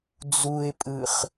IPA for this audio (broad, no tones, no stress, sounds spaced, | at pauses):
d͡z u ɪ̯ pʼ ɯ χ